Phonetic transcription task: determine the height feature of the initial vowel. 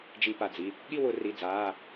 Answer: high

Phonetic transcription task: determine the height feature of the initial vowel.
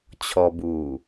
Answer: mid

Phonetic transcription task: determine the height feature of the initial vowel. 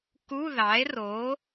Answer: high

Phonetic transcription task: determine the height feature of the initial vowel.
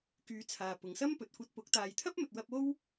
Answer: high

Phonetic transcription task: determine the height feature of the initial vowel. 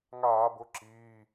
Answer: low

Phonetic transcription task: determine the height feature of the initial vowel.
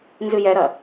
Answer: high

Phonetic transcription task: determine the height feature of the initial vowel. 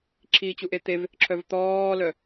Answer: high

